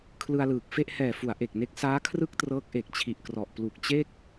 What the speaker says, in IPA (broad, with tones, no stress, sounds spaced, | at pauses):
kʰ l ɯ˧ a̯ l ɯː˨˩ k̚ f e˥˩ ʔ h ɛː˨˩ f u˩˦ a̯ ʔ e˨˩ k̚ n e˦˥ k̚ s aː˦˥ kʰ r ɯ˥˩ k̚ t r ɤː˦˥ k̚ ʔ e˨˩ k̚ t͡ɕʰ i˨˩ ʔ k r ɔ˨˩ ʔ p l u˨˩ k̚ t͡ɕ e˥˩ k̚